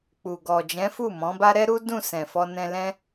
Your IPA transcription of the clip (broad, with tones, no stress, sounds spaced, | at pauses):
k͡p u˨ ɡ ɔ˨ d͡ʒ ɛ̃˨˦ f u˦˨ m ɔ̃˨˦ b a˦ ɾ ɛ˦ ɾ u˦ d ũ˦˨ s ɛ̃˨ f ɔ˧ n ɛ̃˧ l ɛ̃˦